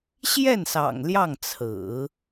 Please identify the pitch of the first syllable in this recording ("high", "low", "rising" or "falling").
falling